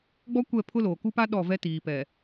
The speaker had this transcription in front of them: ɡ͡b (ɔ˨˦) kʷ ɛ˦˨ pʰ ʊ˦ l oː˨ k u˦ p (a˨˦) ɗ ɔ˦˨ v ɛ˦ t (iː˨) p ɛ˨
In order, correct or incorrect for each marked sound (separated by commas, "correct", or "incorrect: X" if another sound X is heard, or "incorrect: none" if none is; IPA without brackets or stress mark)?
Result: incorrect: ɔ˦, incorrect: a˦, correct